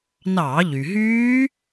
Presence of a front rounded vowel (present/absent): present